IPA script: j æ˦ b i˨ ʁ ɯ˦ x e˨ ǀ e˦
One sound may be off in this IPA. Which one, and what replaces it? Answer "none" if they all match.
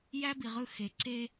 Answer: none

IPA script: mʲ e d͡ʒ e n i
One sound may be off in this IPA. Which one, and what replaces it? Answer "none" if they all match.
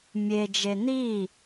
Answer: none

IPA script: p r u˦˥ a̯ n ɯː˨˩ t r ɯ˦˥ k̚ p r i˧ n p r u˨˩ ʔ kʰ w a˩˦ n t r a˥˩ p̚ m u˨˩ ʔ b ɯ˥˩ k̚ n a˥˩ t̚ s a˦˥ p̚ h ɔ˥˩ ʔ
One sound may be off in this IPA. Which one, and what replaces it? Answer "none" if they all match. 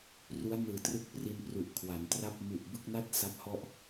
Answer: none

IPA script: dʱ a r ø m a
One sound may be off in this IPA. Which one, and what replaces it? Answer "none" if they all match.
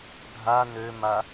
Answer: r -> n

